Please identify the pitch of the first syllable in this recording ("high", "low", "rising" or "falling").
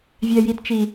low